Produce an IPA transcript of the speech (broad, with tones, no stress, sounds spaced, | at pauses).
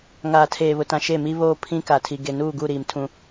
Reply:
ŋ aː˨ tʰ eː˨ β ʊ˨ t ã˨ ʃ e˦˨ m i˦ β oː˦ pʰ ĩ˦ k a˨ tʰ i˨ ɡ e˨ n uː˦˨ ɡ u˦˨ ɾ iː˨ m tʰ ũ˦